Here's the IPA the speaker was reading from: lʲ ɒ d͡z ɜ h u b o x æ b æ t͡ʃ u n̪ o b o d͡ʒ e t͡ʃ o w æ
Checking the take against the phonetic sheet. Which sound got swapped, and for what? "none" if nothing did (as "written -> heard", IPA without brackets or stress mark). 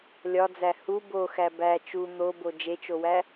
ɜ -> æ